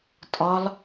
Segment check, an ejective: present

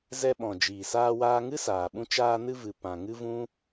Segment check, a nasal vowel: present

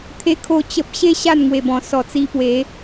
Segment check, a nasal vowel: present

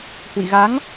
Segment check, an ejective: absent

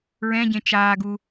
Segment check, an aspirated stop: absent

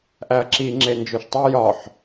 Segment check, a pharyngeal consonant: present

